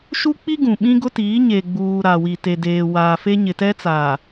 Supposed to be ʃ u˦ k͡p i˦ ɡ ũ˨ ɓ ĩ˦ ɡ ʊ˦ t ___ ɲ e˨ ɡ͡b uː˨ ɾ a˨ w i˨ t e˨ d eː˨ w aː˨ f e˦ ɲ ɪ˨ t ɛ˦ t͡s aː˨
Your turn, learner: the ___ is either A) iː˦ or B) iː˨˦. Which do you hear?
B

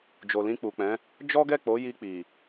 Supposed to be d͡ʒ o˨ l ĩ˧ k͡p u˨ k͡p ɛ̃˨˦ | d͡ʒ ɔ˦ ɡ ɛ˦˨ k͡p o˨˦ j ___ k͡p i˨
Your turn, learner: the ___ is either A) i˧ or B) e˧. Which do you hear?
A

